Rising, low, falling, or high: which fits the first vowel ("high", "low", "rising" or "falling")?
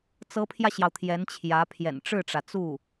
rising